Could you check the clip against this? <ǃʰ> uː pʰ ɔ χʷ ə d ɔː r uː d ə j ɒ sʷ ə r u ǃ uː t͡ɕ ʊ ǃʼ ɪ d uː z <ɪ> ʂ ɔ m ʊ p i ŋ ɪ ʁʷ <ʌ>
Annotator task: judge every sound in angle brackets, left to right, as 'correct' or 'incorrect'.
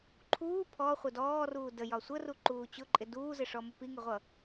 correct, correct, correct

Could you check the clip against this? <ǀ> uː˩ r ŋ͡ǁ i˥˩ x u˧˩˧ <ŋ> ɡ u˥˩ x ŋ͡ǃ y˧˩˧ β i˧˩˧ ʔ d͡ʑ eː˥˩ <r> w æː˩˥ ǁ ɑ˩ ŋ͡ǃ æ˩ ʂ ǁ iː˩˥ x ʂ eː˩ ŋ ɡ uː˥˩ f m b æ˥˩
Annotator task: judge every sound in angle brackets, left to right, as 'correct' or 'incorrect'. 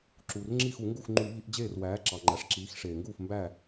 incorrect: ǁ, correct, correct

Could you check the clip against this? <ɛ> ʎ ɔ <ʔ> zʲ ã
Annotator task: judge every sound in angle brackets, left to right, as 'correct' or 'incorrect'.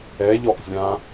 correct, correct

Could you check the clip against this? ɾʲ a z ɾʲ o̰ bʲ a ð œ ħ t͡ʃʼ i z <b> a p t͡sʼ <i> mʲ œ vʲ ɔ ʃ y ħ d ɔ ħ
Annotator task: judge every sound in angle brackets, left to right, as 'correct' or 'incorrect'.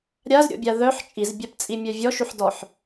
incorrect: bʲ, correct

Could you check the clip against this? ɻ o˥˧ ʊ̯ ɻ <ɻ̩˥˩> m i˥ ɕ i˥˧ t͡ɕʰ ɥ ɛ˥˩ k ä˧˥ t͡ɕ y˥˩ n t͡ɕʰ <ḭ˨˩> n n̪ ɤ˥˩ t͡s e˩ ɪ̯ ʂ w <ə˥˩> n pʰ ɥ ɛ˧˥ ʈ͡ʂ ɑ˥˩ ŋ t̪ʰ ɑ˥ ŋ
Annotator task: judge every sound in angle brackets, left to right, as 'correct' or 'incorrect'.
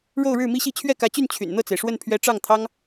correct, incorrect: y̰˨˩, correct

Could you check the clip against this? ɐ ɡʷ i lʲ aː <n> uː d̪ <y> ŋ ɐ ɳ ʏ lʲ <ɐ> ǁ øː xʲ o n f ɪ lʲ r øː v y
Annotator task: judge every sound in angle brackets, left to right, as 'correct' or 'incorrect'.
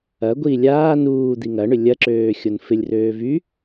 correct, incorrect: i, correct

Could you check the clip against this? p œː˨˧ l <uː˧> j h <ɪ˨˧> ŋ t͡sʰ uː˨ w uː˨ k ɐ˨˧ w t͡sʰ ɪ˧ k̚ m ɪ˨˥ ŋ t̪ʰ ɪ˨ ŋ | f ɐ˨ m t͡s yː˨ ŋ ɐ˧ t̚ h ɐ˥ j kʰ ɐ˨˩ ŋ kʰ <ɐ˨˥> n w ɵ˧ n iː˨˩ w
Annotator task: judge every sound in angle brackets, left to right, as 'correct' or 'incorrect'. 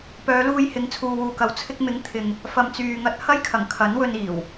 correct, correct, correct

